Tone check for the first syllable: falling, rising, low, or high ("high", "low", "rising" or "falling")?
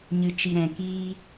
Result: low